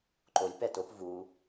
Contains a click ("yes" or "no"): yes